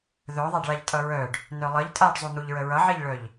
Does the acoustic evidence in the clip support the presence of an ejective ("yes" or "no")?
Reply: yes